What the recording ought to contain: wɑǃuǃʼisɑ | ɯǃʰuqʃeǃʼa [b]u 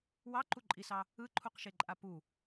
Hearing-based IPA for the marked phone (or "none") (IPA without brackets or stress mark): p